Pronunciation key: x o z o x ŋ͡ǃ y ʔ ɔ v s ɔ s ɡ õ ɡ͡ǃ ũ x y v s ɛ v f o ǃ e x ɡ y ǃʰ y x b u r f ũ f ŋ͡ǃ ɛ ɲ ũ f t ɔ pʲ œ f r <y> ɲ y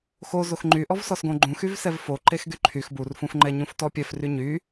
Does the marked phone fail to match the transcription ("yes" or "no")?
no